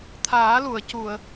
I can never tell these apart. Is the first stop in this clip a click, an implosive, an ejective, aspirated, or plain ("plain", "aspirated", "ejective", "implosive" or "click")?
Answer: aspirated